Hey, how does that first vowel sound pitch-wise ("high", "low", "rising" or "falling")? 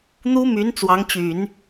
high